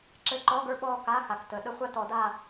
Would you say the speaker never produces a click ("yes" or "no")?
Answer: no